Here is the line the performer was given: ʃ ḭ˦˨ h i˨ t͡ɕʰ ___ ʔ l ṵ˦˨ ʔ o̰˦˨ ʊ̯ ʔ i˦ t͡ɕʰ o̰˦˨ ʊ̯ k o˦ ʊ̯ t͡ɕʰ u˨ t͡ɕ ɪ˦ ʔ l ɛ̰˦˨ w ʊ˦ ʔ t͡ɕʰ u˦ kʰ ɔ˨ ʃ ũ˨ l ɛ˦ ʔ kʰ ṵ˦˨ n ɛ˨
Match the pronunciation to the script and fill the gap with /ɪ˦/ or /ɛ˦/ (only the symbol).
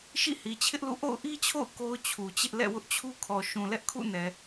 ɪ˦